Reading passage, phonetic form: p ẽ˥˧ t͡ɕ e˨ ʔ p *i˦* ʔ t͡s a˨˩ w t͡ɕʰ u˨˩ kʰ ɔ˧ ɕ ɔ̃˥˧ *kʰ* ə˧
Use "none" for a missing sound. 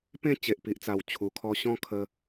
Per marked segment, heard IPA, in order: i˨, kʰ

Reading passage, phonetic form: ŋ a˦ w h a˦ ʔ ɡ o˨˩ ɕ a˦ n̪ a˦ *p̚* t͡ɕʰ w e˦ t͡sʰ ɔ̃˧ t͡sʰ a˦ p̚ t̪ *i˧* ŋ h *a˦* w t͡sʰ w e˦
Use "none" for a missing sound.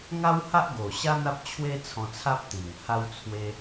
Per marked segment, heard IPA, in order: p̚, i˨˩, a˦

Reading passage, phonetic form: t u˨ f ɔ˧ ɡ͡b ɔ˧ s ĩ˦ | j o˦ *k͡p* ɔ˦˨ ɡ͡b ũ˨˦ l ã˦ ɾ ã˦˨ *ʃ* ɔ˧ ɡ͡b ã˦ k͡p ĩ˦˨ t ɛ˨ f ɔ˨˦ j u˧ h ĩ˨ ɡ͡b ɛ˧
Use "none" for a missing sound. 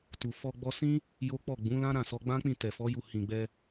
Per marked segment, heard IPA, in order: k͡p, s

